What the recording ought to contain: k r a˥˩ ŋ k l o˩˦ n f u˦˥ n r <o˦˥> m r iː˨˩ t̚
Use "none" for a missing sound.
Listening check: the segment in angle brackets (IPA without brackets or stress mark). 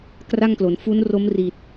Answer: o˦˥